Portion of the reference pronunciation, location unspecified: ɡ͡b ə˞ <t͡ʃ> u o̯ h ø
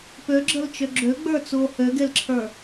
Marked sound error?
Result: yes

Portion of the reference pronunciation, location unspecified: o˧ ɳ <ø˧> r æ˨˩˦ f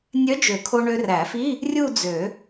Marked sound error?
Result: no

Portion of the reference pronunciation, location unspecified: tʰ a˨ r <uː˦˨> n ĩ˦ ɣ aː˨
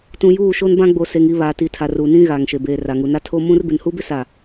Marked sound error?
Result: yes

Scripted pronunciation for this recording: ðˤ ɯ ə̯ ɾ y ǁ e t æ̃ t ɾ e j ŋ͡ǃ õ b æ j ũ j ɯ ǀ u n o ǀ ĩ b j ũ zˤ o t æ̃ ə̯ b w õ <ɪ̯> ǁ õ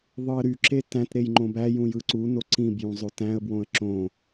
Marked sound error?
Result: yes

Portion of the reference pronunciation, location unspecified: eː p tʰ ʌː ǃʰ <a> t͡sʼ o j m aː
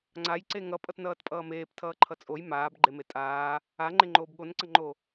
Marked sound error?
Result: yes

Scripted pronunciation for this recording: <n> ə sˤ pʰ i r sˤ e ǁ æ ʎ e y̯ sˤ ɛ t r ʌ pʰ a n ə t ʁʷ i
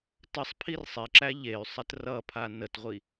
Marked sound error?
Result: yes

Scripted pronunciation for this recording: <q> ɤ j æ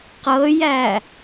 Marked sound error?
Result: no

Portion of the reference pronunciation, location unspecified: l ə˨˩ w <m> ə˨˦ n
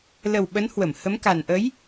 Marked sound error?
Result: yes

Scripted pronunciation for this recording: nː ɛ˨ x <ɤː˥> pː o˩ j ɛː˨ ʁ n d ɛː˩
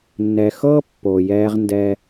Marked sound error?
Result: no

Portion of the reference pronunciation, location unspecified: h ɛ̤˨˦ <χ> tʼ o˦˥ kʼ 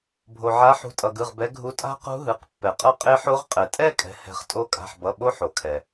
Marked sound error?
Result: no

